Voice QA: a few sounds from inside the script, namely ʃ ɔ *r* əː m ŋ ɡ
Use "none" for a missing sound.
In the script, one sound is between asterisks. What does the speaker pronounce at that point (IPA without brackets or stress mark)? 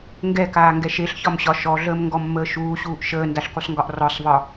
ɮ